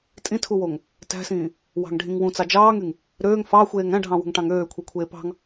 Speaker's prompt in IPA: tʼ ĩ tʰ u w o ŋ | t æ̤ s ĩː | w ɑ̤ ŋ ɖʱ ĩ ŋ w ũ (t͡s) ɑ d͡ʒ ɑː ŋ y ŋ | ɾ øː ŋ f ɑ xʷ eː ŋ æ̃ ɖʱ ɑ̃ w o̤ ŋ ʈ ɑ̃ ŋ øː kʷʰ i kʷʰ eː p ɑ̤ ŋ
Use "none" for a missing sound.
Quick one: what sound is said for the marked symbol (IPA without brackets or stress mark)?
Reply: t͡s